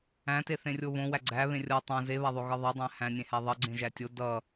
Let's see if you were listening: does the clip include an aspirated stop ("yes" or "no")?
no